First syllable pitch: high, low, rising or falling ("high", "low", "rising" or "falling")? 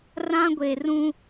high